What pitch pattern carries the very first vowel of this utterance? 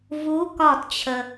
rising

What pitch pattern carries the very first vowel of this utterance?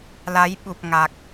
rising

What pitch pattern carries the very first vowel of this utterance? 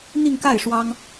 falling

